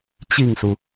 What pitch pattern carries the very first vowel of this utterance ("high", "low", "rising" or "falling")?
falling